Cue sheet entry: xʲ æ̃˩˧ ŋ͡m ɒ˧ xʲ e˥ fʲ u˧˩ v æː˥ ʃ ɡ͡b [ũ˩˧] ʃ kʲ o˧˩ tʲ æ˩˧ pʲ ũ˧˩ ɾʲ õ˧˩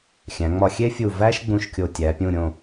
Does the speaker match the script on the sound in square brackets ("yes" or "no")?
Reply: no